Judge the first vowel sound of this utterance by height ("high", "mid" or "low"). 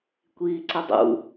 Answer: high